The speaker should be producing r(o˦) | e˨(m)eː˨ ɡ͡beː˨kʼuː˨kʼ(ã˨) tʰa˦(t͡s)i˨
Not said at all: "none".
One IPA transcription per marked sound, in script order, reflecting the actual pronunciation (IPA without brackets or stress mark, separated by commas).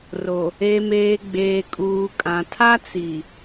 o˨, m, ã˨, t͡s